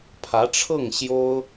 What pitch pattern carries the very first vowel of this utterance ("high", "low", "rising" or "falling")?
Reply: rising